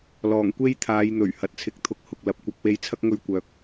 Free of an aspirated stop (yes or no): no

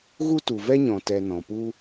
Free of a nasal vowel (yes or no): no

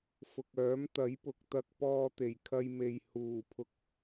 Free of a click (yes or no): yes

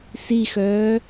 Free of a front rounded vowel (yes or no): no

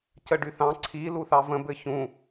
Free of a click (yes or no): no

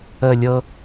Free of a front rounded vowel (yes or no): yes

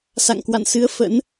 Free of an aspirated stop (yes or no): yes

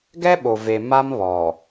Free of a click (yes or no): yes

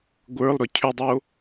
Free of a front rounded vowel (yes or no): no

